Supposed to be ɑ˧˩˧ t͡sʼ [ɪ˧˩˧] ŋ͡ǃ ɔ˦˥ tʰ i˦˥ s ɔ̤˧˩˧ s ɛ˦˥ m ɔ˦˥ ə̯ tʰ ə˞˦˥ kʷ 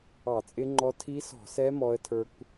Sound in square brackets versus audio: incorrect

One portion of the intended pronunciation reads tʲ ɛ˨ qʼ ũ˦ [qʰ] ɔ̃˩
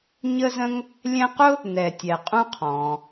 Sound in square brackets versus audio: correct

